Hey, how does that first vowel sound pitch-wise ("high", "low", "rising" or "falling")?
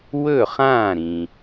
falling